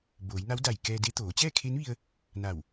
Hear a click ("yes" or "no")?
no